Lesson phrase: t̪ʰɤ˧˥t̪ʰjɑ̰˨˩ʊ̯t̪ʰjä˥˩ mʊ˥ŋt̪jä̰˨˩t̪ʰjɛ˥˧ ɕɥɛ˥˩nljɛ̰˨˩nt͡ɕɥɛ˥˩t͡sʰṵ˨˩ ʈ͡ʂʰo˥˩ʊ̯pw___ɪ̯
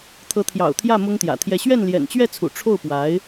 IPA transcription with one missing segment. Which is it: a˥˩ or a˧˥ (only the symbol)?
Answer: a˧˥